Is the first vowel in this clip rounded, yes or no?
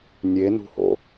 no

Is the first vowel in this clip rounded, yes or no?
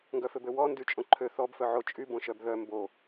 yes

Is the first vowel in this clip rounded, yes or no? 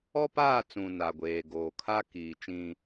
yes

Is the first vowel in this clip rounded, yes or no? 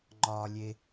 yes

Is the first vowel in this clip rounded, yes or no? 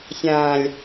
no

